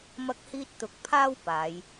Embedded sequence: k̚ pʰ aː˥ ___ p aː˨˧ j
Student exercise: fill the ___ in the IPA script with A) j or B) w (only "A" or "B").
B